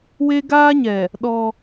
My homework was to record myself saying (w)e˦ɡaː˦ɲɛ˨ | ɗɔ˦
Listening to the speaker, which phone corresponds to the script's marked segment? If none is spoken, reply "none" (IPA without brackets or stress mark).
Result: w